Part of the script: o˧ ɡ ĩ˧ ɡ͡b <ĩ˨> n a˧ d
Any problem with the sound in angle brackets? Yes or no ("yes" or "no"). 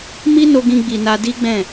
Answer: yes